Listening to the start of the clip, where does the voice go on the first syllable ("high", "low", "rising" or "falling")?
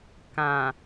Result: low